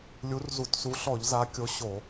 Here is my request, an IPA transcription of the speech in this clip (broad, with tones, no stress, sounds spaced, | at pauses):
lʲ u˨˦ r z u˧˩˧ t s u˨˦ ɬ ɔ˧˩˧ ʎ z a˨˦ kʲ o˨˦ ɕ o˧˩˧